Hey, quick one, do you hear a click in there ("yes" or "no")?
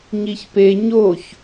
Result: no